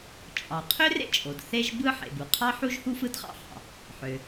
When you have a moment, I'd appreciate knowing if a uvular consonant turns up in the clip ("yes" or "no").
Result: yes